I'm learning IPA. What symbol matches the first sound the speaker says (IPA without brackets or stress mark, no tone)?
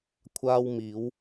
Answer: kʷʰ